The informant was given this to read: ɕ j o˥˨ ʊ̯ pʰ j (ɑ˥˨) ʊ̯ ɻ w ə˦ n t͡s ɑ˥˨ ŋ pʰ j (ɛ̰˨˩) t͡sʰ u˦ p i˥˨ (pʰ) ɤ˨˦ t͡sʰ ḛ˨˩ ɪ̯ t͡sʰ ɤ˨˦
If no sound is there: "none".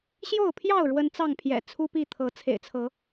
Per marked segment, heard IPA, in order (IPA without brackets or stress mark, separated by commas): ɑ˥˨, ɛ̰˨˩, t̪ʰ